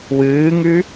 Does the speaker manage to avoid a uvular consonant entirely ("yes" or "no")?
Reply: yes